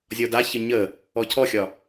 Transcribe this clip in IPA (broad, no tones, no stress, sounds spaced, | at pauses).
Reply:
zʲ ɔ d a ç ə ɲ ə | ɔ cʰ ɔ xʲ ɒ